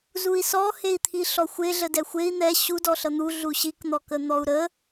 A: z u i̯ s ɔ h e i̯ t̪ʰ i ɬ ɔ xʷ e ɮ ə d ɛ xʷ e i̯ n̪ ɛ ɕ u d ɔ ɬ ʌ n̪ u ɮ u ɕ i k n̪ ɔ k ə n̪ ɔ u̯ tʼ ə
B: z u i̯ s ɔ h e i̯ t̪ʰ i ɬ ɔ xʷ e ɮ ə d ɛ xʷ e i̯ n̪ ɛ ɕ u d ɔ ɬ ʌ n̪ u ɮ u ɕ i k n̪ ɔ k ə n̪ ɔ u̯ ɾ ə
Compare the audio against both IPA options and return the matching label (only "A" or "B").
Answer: B